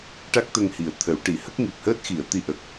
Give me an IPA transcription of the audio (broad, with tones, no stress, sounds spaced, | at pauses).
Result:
ʈ a˦˥ k̚ t̪ ə˧ ŋ h i˨˩ ə̯ t̪ʰ ə˨˩˦ w ʈ i˨˩˦ h ə˦˥ k̚ ŋ i˨˩ p̚ h əː˦˥ t̚ x i˨˩˨ ə̯ t̪ i˧ ʔ ə˨˩ k̚